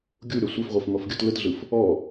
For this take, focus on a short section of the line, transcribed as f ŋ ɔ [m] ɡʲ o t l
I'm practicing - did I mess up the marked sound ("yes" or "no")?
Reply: yes